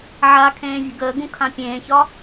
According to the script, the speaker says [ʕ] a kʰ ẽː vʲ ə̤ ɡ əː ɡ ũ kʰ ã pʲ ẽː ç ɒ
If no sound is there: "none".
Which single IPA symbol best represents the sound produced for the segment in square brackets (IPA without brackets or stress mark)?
ʕ